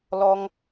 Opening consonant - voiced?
yes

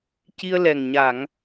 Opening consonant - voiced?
no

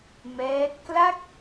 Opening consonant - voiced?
yes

